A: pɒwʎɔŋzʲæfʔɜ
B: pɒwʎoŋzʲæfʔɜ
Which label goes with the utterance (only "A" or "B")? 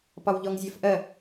A